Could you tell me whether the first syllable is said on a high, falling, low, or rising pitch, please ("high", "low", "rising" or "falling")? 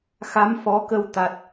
rising